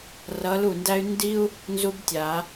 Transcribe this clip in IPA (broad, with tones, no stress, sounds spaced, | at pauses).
r ʌ˧˥ l u˥˨ n d æ˥ y̯ n d i˥ u̯ | n z u˥ b tʲ a˨˩˦